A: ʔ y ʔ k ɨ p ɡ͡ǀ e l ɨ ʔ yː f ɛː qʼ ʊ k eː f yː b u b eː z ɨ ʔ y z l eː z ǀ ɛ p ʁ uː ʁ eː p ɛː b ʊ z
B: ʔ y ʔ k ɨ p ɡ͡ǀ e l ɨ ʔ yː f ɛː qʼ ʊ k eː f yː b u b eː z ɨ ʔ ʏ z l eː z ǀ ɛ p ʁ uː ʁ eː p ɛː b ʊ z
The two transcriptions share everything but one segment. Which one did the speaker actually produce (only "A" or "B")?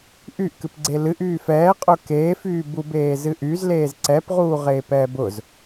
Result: A